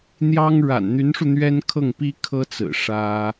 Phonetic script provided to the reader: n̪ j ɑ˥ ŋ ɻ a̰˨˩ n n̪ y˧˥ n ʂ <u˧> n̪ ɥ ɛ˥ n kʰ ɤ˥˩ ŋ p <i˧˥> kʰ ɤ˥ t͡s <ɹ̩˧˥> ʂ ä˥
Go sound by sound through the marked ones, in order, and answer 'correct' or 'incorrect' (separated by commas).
correct, incorrect, incorrect